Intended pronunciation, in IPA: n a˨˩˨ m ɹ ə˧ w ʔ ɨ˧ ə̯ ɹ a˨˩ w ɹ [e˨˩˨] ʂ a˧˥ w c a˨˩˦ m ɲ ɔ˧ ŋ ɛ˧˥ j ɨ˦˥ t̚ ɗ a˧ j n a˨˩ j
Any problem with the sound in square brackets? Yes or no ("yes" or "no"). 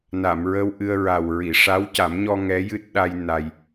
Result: yes